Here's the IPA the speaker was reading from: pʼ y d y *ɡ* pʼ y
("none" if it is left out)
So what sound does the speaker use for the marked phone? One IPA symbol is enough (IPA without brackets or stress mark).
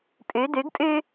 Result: ɡ